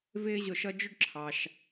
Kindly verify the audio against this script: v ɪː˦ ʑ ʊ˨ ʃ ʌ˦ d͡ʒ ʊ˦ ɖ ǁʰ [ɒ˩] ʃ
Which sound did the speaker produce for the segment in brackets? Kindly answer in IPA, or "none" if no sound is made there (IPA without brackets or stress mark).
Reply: ɑ˩